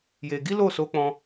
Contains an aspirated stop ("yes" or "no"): no